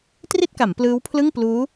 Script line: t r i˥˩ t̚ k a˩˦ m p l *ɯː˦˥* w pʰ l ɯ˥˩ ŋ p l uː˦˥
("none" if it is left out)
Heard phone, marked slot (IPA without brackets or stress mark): ɯː˦˥